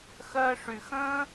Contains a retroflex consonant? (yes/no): yes